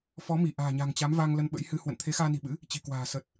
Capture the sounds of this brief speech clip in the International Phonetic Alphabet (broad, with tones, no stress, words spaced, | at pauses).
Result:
fɔ˨˦mi˧˩ʔa̤ː˨˩ɲa̤˨˩ŋ t͡ɕa˨˦mvaː˧ŋ lə˧n ɓə̰˧˥jhɨ˧ hwə̰˧˨nt̪ʰe˨˦xaː˧ni̤˨˩ ɓɨ̰˧˥ | t͡ɕi̤˨˩kwa̤ː˨˩ sə˨˩t̚